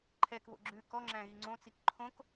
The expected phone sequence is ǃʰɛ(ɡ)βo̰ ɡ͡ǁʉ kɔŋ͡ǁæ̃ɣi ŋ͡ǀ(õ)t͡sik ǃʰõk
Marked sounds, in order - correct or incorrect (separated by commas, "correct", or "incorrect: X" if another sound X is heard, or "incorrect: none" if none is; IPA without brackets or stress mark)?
incorrect: k, correct